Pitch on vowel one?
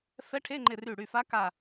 rising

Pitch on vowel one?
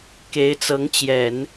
rising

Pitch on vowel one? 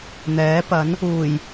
rising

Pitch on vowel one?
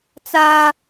high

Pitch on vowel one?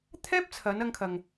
high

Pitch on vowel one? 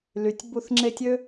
low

